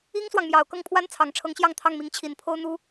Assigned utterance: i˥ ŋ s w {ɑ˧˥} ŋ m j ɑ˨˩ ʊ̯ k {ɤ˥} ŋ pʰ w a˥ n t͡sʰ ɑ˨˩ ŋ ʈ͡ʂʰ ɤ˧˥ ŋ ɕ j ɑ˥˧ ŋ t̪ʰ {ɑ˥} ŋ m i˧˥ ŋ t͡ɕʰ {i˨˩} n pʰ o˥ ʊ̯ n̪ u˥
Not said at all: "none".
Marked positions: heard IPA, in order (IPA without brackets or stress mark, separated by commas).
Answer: ɑ˨, ɤ˥˩, ɑ˥˩, i˨˩